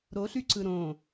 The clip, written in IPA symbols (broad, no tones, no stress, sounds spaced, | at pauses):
ɾ o ɬ y ǀ ɯ ɾ õ